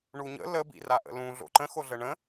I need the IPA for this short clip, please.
ɳuɲə̰ lə bḭraʔə̰lũ ɮo̰ǃə̃ xoɮəɳə̃

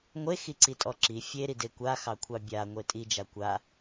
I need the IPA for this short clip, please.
ŋʷexiǀitʼɔ ǁi fʲeɾide kʷaxɑkʷʰɑ bʲaŋʷe tʼid͡ʒa kʷa

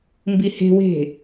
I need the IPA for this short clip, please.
mbihe̤we̤

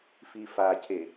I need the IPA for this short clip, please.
fifacʰe

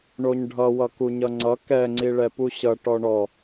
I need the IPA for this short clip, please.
ɳoɲɖʱʌwʌ kuɲʌŋ͡ǀʌ kɛŋ͡ǀi ɭɛpuɕʌ ʈɔɳɔ

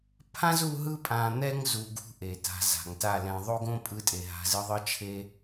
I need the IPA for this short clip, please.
pʰã˦z u˧ɦɯ˧pʼã˨n̪ɛ˧ŋ zu˨ɡṳ˧ ʔe˨ta̤˧ za̤˨ŋta˦˨lɛ̃˧ ðˤo˦ɡõ˦ pʼɯ˦˨tʼe˨ɦa̤˨˦z ɯ˦ðˤɯ˦ t͡ʃʰe˦

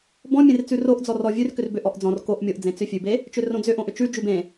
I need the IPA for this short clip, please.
bɔ̃mʲẽrt͡sʉ roʔd͡zɔ rɔvʲʉr kʏrbʏ ʔɔʔd͡zɔ̃r koʔ mʲoʔ d͡zẽt͡sʏfʲʉbe | t͡ʃʏrõd͡zʏʔõ ʔʏt͡ʃʉ d͡ʒʉbẽ

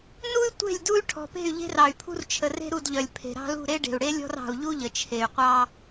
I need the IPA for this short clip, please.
nu˦y̯ tʷe̤˦˨lʲdu˦y̯ ʈʰɔ̤˨pe̤˦˨y̯ʎe̤˦r ɑ˨y̯pʰṳ˦rt͡ʃʰə˨ re̤˦ɾu˦˨dʎœ˨lʲ pʰe̤˨ɾɑ̤˦lṳ˦˨ ɾe˦ɖe̤˨u̯ɽe˦lʲɔ̤˦r ɑ̤˨u̯ʎu˦ ʎə˨t͡ʃʰe˨y̯qʷɑ˦

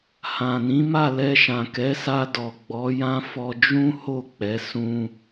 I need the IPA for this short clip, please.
hã˨nĩ˨˦ ma˦˨lɛ˧ʃã˨ kɛ˨˦sa˧dɔ˨ ɡ͡bɔ˨˦jã˦fɔ˧ d͡ʒũ˦ ho˦˨k͡pɛ˨˦ sũ˧

